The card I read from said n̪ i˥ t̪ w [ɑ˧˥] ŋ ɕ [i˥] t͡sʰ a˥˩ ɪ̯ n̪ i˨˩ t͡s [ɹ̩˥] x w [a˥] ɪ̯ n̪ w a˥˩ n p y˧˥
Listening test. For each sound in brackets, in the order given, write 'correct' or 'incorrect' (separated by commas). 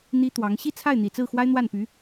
correct, incorrect, incorrect, correct